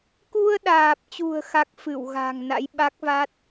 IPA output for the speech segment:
k u˧ ə̯ ɗ aː˨˩ p̚ t͡ɕ ṳ˨˩ ə̯ x a˦˥ k̚ f ɨ˧˩ w ɣ a̤˨˩ ŋ n a̰˧˥ j ɓ a˦˥ k̚ v a˦˥ t̚

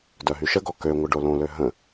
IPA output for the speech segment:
d œ ɦ y ʃ ə ɡ ɔ k ø ŋʷ ə ɖ o l õ l ø ɦ ə̃

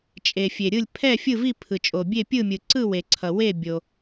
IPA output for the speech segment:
t͡ʃʼ e˩ fʲ e˩ ɾʲ ɯ˦˨ lʲ pʰ ɛ˦˨ fʲ ɯ˦˨ v i˦˨ pʰ ɯ˩ t͡ʃʼ o˩ bʲ e˦˨ pʲ ɯ˦˨ mʲ ɯ˩ ǀ ɯ˦˨ w e˩ ǀʰ ʌ˩ w e˦˨ bʲ o˩

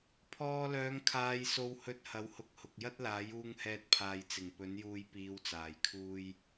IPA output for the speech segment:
pʰ ɔː˧ l œː˨˧ ŋ kʰ aː˧ j s o˧ w h ɵ˧ t̚ h ɐ˨˥ w h ʊ˨˥ k̚ h ʊ˨ k̚ j ɐ˥ t̚ l aː˨˥ j uː˧ ŋ h ɛː˧ t̚ pʰ aː˨ j t͡s ɪ˨˩ ŋ p ɵ˨˥ n j uː˧ j p iː˨˧ w t͡s aː˨˩ j kʰ uː˧ j

